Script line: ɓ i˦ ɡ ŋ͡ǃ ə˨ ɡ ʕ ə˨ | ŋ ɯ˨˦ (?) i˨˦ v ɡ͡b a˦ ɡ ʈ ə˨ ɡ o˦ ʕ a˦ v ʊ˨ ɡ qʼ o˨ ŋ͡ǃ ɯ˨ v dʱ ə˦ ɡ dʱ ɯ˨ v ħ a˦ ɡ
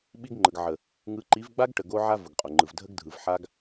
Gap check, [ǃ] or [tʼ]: ǃ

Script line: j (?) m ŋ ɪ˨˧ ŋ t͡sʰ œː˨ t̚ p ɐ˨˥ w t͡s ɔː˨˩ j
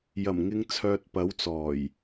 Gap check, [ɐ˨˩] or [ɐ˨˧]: ɐ˨˩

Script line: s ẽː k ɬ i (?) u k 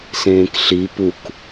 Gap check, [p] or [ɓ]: p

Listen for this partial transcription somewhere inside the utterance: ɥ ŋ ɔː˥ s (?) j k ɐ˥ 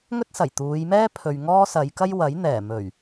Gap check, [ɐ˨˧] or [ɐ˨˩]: ɐ˨˧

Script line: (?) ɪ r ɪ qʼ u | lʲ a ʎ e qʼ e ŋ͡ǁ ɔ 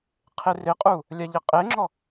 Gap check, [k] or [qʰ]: qʰ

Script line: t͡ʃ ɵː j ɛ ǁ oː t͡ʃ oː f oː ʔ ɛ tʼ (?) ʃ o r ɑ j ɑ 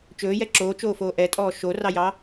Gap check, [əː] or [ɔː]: ɔː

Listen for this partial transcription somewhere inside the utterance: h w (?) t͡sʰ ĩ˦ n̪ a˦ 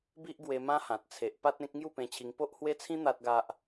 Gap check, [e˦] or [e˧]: e˦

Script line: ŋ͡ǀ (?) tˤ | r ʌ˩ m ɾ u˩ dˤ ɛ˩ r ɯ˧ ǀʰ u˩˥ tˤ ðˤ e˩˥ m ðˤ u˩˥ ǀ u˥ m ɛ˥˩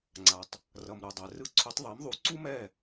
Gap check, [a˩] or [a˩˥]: a˩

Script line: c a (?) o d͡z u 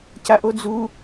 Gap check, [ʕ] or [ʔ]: ʔ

